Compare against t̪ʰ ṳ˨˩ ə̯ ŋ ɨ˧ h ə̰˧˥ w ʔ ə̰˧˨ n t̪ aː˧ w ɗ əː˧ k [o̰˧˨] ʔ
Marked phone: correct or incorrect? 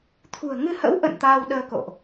correct